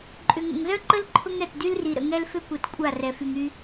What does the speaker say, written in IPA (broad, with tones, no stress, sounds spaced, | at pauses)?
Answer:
ǃʼ ʏ˨ ŋ ə̰˨ ŋ z œ˦ ǃ ə˦ l ǃʰ ʊ˦ ŋ ɾ ɛ˨ t d y˦ l r i˨ ɾ ə̰˨ ŋ ɛ˦ l f ʏ˦ kʷ ɛ˨ t kʷʼ a˦˨ r ɛ˨ f y˨ ŋ y˦